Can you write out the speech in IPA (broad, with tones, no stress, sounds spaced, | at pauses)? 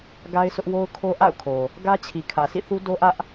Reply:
ɡ a˦ ɪ̯ s ʊ˦ ʔ w o˦ ʊ̯ kʰ o˦ ʔ a̰˦˨ ʊ̯ kʰ o˨ | ɡ ä˦ t͡ɕʰ i˨ kʰ ä˨ sʰ ḭ˦˨ θ u˦ d o˦ ʔ ä˦ ʔ